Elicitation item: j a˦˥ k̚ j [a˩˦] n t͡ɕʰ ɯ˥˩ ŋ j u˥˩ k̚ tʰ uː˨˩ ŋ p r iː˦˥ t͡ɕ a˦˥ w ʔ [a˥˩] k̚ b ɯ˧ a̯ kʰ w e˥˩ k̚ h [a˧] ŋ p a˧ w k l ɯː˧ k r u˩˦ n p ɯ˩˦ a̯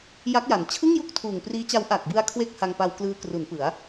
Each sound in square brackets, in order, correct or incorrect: correct, incorrect, correct

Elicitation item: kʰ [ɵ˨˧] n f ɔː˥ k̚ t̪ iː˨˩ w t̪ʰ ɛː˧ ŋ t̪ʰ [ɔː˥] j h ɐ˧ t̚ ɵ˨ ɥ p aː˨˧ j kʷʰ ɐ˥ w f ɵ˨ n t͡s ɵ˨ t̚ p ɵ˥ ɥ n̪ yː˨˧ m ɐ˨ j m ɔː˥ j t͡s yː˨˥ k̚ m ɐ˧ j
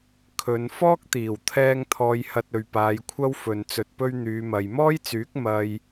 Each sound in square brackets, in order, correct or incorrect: correct, incorrect

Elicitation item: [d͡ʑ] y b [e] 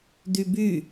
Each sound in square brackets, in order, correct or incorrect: incorrect, incorrect

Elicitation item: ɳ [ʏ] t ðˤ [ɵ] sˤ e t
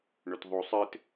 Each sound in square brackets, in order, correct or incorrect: correct, incorrect

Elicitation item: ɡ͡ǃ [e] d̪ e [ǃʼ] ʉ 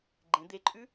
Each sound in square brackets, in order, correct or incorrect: incorrect, correct

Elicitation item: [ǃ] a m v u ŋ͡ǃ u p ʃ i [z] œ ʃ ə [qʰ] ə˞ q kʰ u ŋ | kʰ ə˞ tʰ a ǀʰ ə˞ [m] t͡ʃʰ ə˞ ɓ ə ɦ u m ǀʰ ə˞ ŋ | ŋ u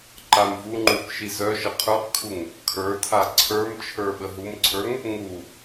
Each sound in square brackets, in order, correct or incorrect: correct, correct, correct, correct

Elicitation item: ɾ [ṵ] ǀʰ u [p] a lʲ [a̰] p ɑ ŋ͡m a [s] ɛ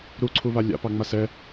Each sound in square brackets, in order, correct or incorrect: incorrect, incorrect, correct, correct

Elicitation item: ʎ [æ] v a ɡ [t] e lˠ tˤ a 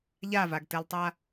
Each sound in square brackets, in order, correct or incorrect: incorrect, correct

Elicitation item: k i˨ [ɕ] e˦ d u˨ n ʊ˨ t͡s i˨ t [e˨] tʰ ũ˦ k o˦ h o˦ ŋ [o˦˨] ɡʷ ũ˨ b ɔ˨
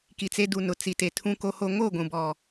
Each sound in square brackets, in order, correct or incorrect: incorrect, correct, correct

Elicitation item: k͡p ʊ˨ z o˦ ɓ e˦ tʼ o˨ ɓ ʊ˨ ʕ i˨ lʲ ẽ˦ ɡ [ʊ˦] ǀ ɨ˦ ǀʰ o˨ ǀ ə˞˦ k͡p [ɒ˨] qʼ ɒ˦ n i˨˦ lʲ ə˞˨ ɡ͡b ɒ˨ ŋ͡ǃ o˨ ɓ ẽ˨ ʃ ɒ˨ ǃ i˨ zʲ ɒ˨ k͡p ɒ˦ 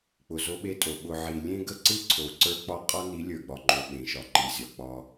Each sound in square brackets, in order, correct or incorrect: incorrect, incorrect

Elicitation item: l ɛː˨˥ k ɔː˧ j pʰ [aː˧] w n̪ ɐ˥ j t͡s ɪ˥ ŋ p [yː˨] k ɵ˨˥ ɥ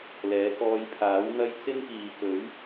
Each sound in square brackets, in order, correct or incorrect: incorrect, incorrect

